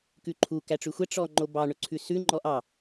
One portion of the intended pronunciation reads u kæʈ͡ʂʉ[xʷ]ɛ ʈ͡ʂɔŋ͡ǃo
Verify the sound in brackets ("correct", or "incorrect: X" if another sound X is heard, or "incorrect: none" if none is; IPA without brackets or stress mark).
correct